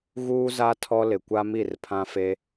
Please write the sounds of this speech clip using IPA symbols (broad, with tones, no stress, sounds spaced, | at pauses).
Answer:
ɣ uː˦ z a˦ tʰ ɔ˦ l ɪ˨ kʷ a˦ m i˦˨ r pʰ ã˦ f e˦